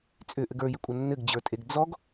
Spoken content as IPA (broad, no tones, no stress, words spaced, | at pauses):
t͡sʼʏʔɘɡ ə˞jʏkʷʼʌ nːɘɡd͡ʑə˞tʼeɡ d͡zɔɡ